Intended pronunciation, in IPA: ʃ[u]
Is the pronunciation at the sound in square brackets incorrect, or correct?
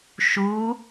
correct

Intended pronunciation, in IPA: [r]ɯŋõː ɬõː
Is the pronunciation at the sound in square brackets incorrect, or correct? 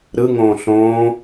incorrect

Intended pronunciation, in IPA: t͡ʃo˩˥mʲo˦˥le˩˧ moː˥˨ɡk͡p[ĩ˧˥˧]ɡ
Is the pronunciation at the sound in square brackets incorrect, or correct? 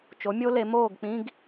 correct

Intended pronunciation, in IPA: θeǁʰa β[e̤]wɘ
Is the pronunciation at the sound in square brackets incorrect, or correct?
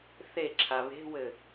correct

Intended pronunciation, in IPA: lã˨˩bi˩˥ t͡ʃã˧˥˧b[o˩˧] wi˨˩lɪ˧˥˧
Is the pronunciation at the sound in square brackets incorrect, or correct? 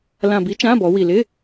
incorrect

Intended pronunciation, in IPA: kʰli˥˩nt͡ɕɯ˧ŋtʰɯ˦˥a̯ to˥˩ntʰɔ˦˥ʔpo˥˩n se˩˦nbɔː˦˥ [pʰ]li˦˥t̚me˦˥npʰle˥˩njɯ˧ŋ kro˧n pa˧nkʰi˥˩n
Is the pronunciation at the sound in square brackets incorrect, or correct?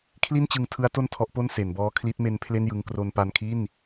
incorrect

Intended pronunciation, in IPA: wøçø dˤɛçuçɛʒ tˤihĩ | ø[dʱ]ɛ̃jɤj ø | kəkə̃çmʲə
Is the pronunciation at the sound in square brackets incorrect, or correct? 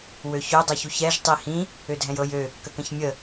correct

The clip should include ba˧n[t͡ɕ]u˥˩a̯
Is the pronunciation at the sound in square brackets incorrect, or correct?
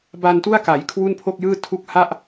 incorrect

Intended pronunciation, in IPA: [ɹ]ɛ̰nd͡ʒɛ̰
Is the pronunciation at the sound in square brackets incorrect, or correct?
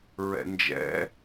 correct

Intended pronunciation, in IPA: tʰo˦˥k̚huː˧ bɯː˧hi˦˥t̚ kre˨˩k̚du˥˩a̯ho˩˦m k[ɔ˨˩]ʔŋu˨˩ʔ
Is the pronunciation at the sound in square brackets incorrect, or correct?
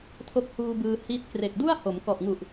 correct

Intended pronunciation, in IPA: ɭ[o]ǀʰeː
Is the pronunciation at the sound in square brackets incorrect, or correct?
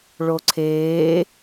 correct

